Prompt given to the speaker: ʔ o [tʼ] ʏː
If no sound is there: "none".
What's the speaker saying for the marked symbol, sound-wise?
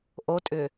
tʼ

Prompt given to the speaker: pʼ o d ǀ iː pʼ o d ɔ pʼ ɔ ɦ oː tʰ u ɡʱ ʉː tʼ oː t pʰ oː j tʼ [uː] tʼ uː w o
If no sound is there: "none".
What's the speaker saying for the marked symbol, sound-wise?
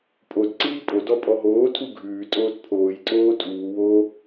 oː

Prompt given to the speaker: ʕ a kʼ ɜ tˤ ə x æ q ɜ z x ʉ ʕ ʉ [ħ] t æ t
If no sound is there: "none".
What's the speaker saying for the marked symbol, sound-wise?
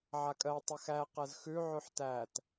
ħ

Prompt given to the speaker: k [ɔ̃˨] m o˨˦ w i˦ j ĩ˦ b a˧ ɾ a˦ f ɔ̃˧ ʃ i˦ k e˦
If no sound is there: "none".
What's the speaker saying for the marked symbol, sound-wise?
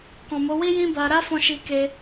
ɔ̃˨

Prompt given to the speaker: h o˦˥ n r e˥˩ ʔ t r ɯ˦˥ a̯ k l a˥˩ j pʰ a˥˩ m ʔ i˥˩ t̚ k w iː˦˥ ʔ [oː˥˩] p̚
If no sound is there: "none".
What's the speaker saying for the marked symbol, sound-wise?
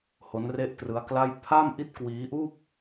uː˥˩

